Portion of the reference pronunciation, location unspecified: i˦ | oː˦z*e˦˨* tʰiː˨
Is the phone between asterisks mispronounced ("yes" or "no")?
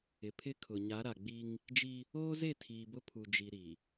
no